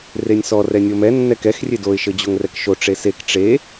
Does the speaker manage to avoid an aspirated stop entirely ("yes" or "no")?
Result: yes